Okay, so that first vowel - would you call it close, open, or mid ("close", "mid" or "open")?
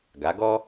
open